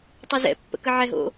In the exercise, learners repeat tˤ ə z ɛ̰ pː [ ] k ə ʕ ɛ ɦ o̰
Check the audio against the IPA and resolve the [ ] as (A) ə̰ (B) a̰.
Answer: A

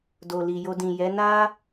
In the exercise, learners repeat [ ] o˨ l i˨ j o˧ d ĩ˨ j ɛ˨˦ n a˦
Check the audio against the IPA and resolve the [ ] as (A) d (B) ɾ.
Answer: A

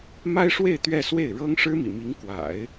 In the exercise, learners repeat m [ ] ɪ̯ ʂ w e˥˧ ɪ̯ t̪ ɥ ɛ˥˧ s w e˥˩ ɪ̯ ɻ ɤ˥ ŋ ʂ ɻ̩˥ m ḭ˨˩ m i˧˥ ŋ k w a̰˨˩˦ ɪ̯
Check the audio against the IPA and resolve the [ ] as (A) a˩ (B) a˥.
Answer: B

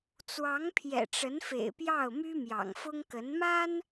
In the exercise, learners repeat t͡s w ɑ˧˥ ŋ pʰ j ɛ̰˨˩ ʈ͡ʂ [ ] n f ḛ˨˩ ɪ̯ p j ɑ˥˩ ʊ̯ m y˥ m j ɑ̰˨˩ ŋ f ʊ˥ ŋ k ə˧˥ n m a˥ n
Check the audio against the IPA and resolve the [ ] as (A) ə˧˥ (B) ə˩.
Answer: A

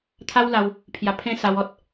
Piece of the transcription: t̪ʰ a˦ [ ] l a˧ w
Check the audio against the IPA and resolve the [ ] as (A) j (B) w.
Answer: B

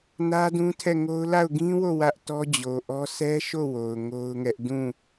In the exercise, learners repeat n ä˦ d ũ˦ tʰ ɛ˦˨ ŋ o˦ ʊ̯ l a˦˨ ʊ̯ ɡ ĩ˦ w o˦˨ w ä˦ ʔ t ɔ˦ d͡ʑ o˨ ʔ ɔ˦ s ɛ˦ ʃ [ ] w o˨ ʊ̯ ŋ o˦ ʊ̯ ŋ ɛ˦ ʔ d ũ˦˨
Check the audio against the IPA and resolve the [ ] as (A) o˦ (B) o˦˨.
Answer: B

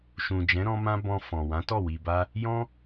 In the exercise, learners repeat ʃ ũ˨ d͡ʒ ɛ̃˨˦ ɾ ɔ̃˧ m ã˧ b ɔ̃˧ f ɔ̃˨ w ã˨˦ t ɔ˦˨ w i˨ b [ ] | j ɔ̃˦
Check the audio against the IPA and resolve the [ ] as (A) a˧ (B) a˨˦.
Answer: A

